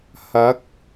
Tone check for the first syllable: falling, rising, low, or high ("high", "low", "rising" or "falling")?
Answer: rising